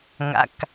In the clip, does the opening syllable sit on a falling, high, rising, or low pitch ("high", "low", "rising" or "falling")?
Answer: low